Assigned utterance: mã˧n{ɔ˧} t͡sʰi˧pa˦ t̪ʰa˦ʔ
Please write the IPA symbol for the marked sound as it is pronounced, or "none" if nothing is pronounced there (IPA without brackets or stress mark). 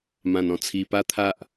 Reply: ɔ̃˧